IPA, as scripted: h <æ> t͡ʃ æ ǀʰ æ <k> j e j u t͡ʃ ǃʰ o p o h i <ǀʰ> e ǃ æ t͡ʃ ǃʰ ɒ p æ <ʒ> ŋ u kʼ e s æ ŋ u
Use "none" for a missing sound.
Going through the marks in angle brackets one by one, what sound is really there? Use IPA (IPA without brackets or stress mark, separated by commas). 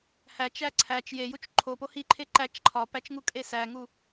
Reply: æ, t͡ʃ, ǃʰ, t͡ʃ